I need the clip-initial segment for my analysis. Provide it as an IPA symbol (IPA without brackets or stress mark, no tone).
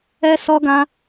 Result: ɛ